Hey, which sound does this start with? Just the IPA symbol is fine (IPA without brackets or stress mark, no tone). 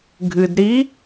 ɡʱ